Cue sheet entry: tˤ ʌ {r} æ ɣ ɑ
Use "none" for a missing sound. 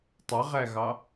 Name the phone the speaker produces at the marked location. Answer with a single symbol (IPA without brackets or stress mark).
ʁ